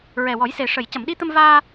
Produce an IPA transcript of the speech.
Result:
ɹɛ˨˩wɔ˨˩˦jse˨˩ ʂə˨˩˨j cə˨˩˨mɗi˧t̪ə˧m vaː˧

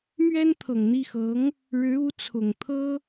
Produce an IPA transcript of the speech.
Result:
mɥɛ˥nt̪ʰɤ˨˩ŋn̪i˥˩xɤ˧˥ŋ | ɻɻ̩˧˥u˧˥t͡sʰʊ˨˩ŋ t̪ʰɤ˥

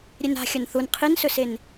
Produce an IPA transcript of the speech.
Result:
ɾʲena̤ xʲɐnθun qʰinsɵsen

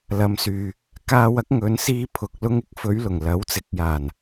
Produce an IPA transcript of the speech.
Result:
lɐ˨msyː˨ | kaː˧wɐ˨˥k̚ ŋɵ˨˧nsiː˧ pʰʊ˨k̚ lʊ˧ŋɪ˧k̚fɵ˨˧ɥlʊ˨˩ŋ lɐ˨˥wt͡sɪ˨˥k̚jaː˨˩n

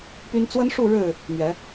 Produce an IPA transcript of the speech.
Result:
py˦n t͡swə˦nʂu˥˨ ɻɻ̩˥˨ | mɥɛ˨˦

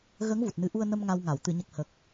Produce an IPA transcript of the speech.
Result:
ɣəː˧˥ŋvu˨˩t̚nɨ˨˩˦ʔu˧ə̯ nə˧m ŋa˧wŋa˨˩˨w t̪ɨ˨˩˨ɲə˨˩k̚hə˨˩k̚

